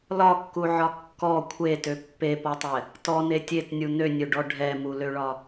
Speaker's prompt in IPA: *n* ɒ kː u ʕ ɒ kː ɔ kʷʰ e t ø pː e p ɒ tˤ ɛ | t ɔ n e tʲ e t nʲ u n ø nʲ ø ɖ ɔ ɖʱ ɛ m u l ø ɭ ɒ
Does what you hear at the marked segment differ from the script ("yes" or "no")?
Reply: yes